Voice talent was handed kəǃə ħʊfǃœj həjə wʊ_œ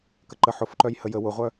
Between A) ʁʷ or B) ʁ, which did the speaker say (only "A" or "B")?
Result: A